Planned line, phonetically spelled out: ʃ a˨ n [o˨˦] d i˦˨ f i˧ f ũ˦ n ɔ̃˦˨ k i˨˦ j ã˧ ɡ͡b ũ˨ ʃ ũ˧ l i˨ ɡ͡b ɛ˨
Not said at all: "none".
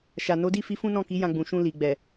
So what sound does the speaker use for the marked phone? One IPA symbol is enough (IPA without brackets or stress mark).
o˨˦